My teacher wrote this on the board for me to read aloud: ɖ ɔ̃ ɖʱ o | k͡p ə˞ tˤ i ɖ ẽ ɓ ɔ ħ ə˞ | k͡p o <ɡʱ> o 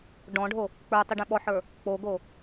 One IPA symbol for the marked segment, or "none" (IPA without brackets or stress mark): ɡ